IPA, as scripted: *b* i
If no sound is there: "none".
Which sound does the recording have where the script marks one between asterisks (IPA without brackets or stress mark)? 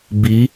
b